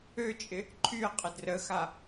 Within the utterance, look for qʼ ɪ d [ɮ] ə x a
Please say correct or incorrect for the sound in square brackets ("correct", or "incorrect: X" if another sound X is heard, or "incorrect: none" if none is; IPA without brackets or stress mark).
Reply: incorrect: r